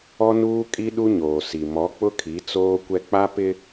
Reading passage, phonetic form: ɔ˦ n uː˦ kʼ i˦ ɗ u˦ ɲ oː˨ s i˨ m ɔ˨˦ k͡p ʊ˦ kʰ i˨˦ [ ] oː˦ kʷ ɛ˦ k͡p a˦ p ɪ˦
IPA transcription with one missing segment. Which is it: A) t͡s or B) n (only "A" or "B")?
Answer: A